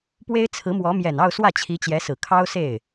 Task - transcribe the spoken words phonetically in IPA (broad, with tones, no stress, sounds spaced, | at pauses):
p w e˥ ɪ̯ t͡sʰ ɹ̩˧˥ m w ɔ˧˥ m j ɛ˨˩ n ɑ˥˧ ʊ̯ s w ä˥˩ t͡ɕʰ i˧˥ t͡ɕ j ɛ˧˥ s ɹ̩˨˩ kʰ ɑ˥ ʊ̯ s e˥˩ ɪ̯